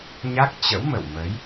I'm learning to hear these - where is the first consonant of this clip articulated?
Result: palate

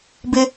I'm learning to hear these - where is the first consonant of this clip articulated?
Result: lips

